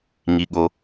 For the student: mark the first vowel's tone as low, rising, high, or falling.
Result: low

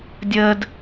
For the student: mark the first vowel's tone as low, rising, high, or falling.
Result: high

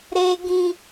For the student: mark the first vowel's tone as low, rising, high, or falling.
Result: high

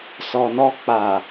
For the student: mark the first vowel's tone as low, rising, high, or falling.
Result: low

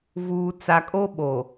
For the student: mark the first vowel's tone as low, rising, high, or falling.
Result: low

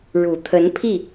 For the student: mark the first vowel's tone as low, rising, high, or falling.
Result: low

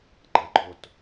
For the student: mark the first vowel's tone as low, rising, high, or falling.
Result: rising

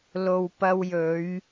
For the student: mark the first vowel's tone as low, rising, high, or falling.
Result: low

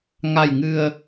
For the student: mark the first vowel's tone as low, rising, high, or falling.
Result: low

